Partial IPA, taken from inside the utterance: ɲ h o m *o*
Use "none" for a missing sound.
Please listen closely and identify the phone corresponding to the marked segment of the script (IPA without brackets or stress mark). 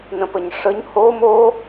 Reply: o